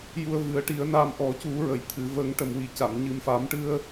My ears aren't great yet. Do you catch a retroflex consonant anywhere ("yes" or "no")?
yes